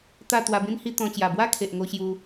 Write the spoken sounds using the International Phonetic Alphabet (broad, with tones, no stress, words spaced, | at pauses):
t̪a˥˧ t̪wa˧bĩ˦nhi˦ t̪ɔ̃˧ t͡ɕja˨˩bwa˦kʰe˨ʔŋo˧ ɕju˧